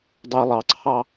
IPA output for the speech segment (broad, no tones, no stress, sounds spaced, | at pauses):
dˤ ɛ lˠ ɑ ǀʰ ɑ